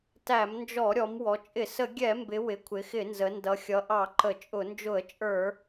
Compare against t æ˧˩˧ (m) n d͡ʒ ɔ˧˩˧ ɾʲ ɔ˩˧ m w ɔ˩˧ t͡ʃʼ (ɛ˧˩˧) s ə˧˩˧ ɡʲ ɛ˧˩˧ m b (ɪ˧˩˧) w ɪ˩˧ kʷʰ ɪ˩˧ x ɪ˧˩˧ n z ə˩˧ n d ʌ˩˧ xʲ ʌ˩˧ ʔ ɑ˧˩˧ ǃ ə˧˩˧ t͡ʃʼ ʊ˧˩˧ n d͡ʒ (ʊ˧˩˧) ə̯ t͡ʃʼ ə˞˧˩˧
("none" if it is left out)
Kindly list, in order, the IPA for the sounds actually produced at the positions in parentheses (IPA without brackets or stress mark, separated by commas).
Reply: m, ɪ˧˩˧, ɪ˩˧, ʊ˧˩˧